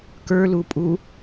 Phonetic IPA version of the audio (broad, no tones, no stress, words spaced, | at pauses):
kə˞lupʼu